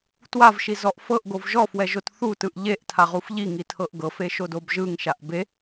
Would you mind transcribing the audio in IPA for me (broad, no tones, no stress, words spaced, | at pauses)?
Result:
twavʃizɔʔ fɤʔɡov ʒɔfwɛʒot θutɯʔ ʎeʔtʰaʁuf ʎiŋitʰɤʔ ɡɤfeʃodob ʒɯŋʃaʔ be